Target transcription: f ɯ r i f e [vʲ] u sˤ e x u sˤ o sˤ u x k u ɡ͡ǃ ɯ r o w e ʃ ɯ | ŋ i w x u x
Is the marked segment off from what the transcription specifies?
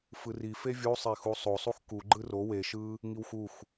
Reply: no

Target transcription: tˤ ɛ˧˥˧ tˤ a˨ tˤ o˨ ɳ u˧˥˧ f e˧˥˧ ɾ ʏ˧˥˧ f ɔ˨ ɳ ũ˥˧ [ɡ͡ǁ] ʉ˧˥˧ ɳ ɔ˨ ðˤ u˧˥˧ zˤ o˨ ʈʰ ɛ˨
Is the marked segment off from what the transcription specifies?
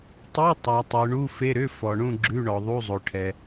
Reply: no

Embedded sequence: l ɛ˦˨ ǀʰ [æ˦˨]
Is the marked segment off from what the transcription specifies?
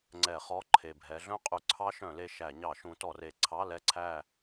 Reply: no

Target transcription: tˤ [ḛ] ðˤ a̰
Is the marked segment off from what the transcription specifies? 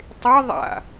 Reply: yes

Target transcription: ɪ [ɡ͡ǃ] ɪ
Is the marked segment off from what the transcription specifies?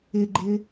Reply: no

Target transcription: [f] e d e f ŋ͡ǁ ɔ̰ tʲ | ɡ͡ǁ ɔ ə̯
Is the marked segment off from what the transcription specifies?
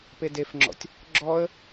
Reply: yes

